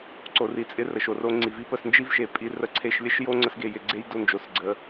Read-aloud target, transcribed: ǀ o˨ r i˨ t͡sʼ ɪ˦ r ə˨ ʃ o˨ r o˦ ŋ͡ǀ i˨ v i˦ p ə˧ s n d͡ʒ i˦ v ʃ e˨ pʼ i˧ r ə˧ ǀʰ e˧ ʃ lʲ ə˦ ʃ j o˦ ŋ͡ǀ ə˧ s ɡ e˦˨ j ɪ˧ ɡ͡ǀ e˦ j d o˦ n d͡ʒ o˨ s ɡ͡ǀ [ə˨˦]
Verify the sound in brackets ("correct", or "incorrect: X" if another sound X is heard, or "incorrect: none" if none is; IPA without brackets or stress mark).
correct